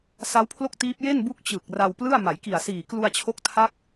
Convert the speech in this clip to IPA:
s a˦˥ w pʰ l o˥˩ k̚ t iː˦˥ p̚ j e˥˩ n b u˦˥ k̚ t͡ɕ ɯ˨˩ k̚ r a˧ w p l ɯ˥˩ a̯ m a˩˦ j k i˨˩ a̯ s iː˨˩ k l u˧ a̯ t͡ɕʰ o˦˥ k̚ tʰ a˦˥ k̚

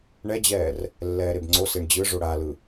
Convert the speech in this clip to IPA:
ɳ ɛ d͡ʑ ɛː r | lː ɛː ɾ e b ŋ͡ǀ o s e ɳ d͡ʑ ɯ ʐ o ɽ a l ɯ

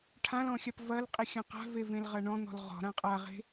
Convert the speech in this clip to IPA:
ʈʰ ã l ɔ̃ xʲ a p v ɐ l qʼ i xʲ ɐ̃ q a̤ v e v ẽ l ʁ ɐ ɳ ɔ̃ n̪ ɔ̤ l ʁ ɔ̤ ɾ ã qʼ a ʁ e̤

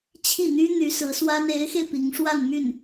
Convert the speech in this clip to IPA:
t͡ɕʰ i˥˩ n̪ y˥ n̪ y˧˥ s ɹ̩˧˥ s w a˥ n e˧˥ ɪ̯ x e˧ ɪ̯ p i˧˥ ŋ ʂ w a˥˧ n m y˥˩ n

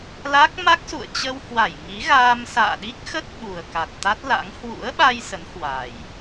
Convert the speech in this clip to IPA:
l a˦˥ k̚ m a˦˥ k̚ s ṵ˧˨ ə̯ t͡ɕ ə˧ w h w a˧˩ j ŋ i˨˦ ɣ aː˧ m s a̰ː˧˨ ɗ i˦˥ k̚ x ə˦˥ t̚ ɓ u˨˩ ə̯ k a˨˩ t̚ t̪ a˦˥ t̚ l a̰˧˥ ŋ h w ṵ˧˥ ə̯ ɓ a˧ j s ə˨˦ n h w a˨˩ j

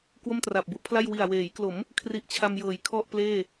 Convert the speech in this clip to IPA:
k w o˥˩ m t r a˨˩ p̚ b u˦˥ ʔ pʰ l a˥˩ j w i˨˩ a̯ w eː˩˦ j k l o˩˦ m | kʰ r i˦˥ ʔ t͡ɕʰ a˧ m j ɤː˩˦ j kʰ ɔ˥˩ ʔ p l eː˥˩

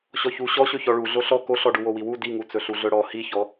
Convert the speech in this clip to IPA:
ɕ ɔ ç u ɕ ɔ ɕ ɵ ç ɔ ɭ u ɮ o ɬ ɔ k o ɬ ɔ ɖ u w o w i w u d i ŋ u t͡s ɵ ɬ u ɮ ɵ ɽ ɔ h i ç ɔ

